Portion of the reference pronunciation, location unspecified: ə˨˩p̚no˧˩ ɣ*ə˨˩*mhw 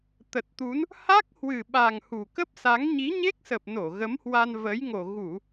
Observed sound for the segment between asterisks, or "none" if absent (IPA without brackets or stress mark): ə˨˦